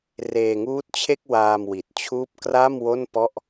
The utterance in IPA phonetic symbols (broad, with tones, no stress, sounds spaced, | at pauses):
r eː˧ ŋ uː˦˥ t̚ t͡ɕʰ e˥˩ k̚ w aː˧ m w i˨˩ t̚ t͡ɕʰ uː˦˥ p̚ k r a˥˩ m w o˥˩ n p ɔ˥˩ ʔ